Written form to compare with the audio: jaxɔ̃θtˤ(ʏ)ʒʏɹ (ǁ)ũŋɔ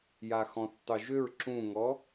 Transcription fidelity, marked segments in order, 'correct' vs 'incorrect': incorrect, correct

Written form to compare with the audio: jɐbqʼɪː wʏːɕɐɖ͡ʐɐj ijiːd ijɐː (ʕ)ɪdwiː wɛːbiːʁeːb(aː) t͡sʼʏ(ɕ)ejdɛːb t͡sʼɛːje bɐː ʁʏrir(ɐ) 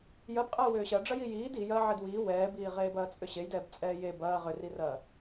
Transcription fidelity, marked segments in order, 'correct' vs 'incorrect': correct, incorrect, correct, incorrect

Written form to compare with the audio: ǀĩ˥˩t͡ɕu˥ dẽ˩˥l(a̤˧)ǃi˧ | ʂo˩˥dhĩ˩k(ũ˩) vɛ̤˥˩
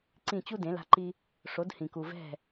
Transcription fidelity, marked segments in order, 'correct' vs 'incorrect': correct, incorrect

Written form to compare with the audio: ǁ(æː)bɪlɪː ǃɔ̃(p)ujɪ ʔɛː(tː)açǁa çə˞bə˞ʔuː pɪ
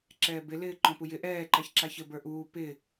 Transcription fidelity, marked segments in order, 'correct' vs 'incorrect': incorrect, correct, incorrect

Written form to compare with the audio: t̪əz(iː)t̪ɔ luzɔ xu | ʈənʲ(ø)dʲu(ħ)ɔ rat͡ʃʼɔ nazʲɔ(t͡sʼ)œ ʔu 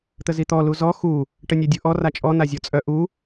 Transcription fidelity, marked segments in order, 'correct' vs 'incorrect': incorrect, correct, incorrect, correct

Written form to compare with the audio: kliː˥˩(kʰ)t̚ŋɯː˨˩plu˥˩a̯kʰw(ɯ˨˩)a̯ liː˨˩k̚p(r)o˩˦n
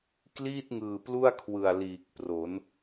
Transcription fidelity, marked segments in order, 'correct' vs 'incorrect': incorrect, correct, correct

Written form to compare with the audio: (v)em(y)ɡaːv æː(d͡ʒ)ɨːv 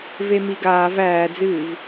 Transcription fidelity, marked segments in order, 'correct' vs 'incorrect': correct, incorrect, incorrect

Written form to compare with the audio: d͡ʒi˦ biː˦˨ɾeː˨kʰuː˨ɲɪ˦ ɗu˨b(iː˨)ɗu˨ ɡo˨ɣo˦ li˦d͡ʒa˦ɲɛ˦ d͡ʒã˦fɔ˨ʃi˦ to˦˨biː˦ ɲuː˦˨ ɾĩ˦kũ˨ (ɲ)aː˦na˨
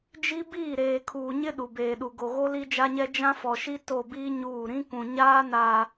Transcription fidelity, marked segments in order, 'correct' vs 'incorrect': incorrect, correct

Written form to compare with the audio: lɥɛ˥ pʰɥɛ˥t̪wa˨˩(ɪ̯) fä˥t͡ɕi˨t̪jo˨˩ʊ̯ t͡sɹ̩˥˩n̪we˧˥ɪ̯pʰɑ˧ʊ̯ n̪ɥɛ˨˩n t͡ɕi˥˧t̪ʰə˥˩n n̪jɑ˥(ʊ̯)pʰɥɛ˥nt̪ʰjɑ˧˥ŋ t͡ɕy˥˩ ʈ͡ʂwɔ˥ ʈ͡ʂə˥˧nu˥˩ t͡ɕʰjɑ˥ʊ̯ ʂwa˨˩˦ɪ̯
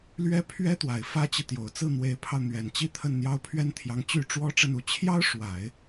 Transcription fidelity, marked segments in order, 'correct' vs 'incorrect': correct, correct

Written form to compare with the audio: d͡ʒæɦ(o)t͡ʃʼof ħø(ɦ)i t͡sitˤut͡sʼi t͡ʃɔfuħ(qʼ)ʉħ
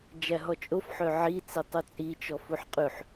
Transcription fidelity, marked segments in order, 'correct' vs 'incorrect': incorrect, incorrect, correct

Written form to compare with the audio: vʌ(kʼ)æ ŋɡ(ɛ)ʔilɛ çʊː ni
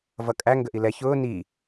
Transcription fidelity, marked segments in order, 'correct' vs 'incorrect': correct, incorrect

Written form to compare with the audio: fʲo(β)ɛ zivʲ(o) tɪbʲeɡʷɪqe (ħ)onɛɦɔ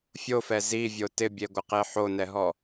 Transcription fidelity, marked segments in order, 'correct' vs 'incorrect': incorrect, correct, correct

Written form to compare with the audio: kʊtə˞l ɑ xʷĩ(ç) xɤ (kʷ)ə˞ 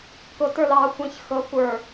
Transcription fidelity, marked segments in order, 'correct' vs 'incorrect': correct, correct

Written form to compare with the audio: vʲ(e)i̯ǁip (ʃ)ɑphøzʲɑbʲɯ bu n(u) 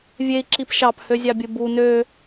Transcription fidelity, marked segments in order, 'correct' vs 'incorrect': correct, correct, incorrect

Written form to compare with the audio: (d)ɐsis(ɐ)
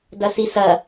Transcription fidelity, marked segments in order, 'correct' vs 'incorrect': correct, correct

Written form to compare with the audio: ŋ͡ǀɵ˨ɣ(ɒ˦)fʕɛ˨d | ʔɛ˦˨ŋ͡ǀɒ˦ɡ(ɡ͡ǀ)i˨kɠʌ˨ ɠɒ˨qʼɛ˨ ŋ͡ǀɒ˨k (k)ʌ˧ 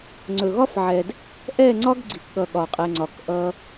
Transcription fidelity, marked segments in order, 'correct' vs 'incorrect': correct, correct, incorrect

